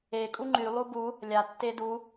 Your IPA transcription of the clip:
e kʼ u ŋ͡ǃ y lˠ u b u | lʲ a tː e d u

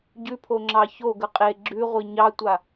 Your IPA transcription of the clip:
ɟ ʉ pʰ o ŋ͡ǁ ɑ ç o ɡ ə qʼ e ɡ͡ǁ ʉ ʁʷ i ɲ ɑ tʷ a

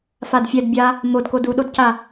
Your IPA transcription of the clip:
f a d fʲ ɛ d bʲ a | m o d k o d u ɗ o d c a

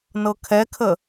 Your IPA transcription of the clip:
n ɤ kʰ ɛ kʰ ə

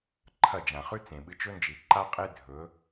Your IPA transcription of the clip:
ǃʰ ɐ˦˨ d͡ʒ ã˨ χ ʉ˦ t͡s ẽ˨ ɓ ɨ˧ t͡ʃ ɵ˦ n d͡ʒ i˨ ǃ a˦ qʼ e˦ dʱ ɵ˨˦

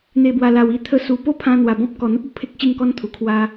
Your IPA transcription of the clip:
n̪ e˨˩ b w a˨˩ l a˨˩ w i˧ t̪ʰ ə˧ s u˨˩ p o˥˧ pʰ ã˧ n̪ w a˨˩ b ɔ̃˦ p̚ k ɔ˨˩ n̪ ə˦ p̚ o˨˩ pʰ e˦ k̚ ɕ i˥˧ ŋ k ɔ˦ n t̪ʰ u˨˩ kʰ w a˦

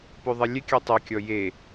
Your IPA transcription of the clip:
p ø ðˤ ɛ lʲ ɛ kʲ œ tˤ i kʲ ɔ j e

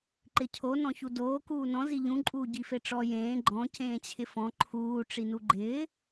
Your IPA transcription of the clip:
ǃ ɪ cʰ o n ɔ̃ ç u d oː k uː n ɔ̃ z i ʎ ũ ǃʼ uː ɟ i f e ʈ͡ʂ ɔ j ẽː ɡ͡ǃ ɔ̃ c ẽː t͡ɕʰ ɪ f ɔ̃ ǃʰ uː ʈ͡ʂ i n u ɡ͡ǃ ɪː

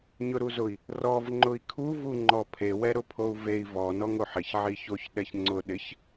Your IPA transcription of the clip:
ɲ ʊ ɾ u z ʊ i̯ | r ɔ v ŋ͡ǃ ʊ i̯ kʰ u v u ŋ͡ǃ ɔ pʰ e w ɛ ɾ ʊ pʰ o u̯ v e i̯ v ɔ n ɔ ŋ o ħ ɪ ç ʕ i ç o ç ɗ ɛ ç ŋ͡ǀ ʊ ɗ ɪ ç

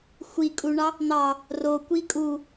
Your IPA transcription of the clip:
xʷ i kʼ u ɳ ɑ | n̪ ɑ | r o kʷ i kʼ u

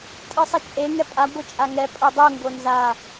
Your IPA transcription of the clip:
tʼ ɯ sˤ ʌ t͡ʃʼ e ŋ ɛ pʼ a ɡʷ ɯ t͡ʃʼ a ŋ ɛ pʼ o dˤ u ŋ ɡ o n z a

